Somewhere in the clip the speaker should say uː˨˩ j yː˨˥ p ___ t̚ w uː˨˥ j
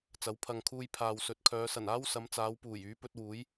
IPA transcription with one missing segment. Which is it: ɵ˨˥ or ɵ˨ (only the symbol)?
ɵ˨˥